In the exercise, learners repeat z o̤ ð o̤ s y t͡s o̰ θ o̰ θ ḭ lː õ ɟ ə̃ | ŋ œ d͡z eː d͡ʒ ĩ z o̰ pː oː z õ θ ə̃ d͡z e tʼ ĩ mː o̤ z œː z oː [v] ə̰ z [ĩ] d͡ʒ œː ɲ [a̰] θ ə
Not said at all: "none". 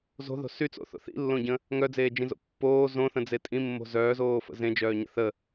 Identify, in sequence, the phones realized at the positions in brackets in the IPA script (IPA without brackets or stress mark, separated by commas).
f, ẽ, ə̰